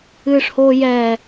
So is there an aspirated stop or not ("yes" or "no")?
no